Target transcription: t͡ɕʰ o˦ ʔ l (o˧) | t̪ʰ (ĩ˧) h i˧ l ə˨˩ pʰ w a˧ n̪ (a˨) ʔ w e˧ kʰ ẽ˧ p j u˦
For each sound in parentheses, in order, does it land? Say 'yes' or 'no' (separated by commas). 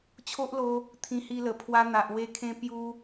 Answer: yes, yes, yes